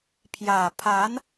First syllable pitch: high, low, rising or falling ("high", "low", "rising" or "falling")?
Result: low